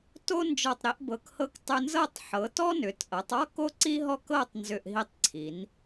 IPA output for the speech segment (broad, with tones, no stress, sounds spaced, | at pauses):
t o˧ n d͡ʒ ɔ˨˩ tˤ ɾ i˩˧ ʔ b ɤ˩˧ k h ɤ˧ k tˤ ʏ˧ n z ɤ˥˧ tˤ ħ ɤ˩˧ t ɔ˥ n ʏ˩˧ t ʔ ɤ˩˧ tˤ ɔ˥ k o˥ ǀ i˥ ɦ ɔ˥˧ k ɤ˥˧ tˤ n z ʏ˨˩ ʔ ɦ i˧ tˤ ǀʰ i˩˧ n